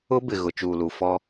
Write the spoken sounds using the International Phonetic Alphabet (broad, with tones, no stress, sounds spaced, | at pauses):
ʊ˦ b ɪ˨ ɣ ʊ˨ t͡ʃ uː˨ l u˨ f ɔ˦